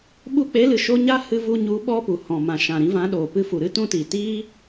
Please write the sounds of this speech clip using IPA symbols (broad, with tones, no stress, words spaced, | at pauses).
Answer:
ɓu˧k͡pe˨˦lɨ˨ʃo˧ ɲa˦hɨ˧vu˧ɲu˨˦ ɓɔ˦pu˨ hɔ̃˨mã˨ʃã˨ɾĩ˧ vã˨˦ɗoː˨ pɨ˧fu˨ɾɨ˦ tũ˧tiː˨tiː˦